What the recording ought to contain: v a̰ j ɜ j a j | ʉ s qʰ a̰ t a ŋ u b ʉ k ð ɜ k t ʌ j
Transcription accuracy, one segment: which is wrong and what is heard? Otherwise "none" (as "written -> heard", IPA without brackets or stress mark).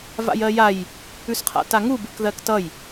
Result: none